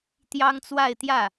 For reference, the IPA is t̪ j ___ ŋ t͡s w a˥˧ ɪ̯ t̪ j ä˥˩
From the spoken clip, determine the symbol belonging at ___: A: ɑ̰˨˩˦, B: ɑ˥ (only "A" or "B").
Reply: B